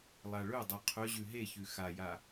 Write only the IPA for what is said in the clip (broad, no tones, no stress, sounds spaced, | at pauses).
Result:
lˠ a ɭ ɵ dˤ u qʰ ɵ ʑ ʉ ɦ e ç ʉ x a j a